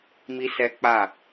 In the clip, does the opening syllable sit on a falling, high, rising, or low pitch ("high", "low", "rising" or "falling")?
high